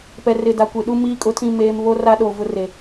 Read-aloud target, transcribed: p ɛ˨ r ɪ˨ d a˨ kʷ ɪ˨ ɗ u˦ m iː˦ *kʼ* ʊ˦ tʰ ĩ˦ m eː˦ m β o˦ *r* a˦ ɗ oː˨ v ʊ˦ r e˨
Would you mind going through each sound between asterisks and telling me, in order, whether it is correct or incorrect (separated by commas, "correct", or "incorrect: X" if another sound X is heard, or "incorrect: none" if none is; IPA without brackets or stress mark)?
correct, correct